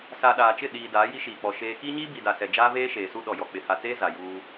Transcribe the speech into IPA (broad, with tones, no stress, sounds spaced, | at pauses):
s a˨ ɗ aː˨ t͡ʃ ɪ˦˨ ɗ iː˨ d aː˨˦ j i˦ ʃ iː˨ k͡p ɔ˨ ʃ eː˦ k iː˦ ɲ iː˦ b i˨ d a˨ s ɛ˨ d͡ʒ aː˦ v eː˦ ʃ eː˨ s u˦ ɗ ɔ˨ j ɔ˨ k͡p ɪ˨ h a˨ t͡s eː˦ z a˨ j uː˦